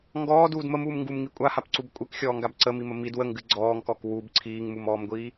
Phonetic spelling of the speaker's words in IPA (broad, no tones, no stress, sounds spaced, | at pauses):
ŋ ɡ ɔː d uː d m ə m uː m ŋ ɡ u m ŋ i kʷʼ a h a p ǀ u b kʷʼ ɨ k xʲ ɔː ŋ ɡ a b ǀ ə m i m ə m i d w ə ŋ ɡ ɨ ɡ͡ǀ ɔː ŋ k ɔ k w u b ǀʰ iː ŋ m u m ɔː m ɡʷ iː